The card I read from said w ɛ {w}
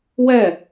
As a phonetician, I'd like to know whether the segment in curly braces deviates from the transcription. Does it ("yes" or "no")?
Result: yes